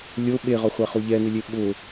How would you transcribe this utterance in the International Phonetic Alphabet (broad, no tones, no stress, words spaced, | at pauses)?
lʲo ɓeʁɔχʷaχo ʎɛnɪlʲe ɓʊ